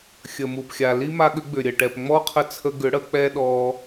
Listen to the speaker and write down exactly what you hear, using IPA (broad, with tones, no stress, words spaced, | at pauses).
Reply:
xʲə˨mu˨pxʲa˨ li˦ma˧ɠʏ˨˦ ɡ͡bʏ˨ɾʲə˨ʈɛ˨p ŋ͡mɔ˦qʰə˧t͡sʰə˧ ɡʏ˨˦ɽə˨˦ k͡pɛ˦ɗɔ˧